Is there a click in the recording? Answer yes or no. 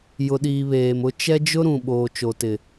no